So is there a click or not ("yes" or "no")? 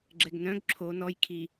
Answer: yes